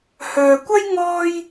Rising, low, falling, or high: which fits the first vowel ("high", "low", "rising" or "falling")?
low